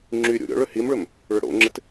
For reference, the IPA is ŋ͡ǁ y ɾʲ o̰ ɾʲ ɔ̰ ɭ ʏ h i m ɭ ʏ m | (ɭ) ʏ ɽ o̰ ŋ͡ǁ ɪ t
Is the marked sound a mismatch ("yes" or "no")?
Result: no